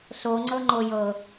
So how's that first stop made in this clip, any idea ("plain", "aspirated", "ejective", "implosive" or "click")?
click